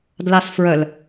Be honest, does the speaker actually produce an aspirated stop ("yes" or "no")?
no